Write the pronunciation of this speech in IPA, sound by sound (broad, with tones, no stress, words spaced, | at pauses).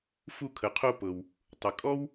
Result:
fu˧kʰə˩qʰo˧ pɤ˩w | tˤə˩ kʼɔ˥w